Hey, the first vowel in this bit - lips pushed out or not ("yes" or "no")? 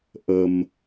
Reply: no